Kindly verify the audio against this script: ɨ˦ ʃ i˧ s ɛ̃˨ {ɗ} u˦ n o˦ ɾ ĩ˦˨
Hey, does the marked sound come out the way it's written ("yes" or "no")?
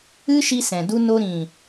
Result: no